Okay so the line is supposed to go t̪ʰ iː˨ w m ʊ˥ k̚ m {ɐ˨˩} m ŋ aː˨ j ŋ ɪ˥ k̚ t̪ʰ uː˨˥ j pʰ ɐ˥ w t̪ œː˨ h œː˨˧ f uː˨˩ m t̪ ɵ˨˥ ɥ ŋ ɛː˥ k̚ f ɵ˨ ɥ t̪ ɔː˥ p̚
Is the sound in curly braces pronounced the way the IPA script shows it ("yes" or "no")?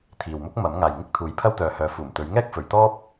no